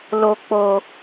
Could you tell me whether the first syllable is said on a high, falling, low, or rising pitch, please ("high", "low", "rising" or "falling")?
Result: high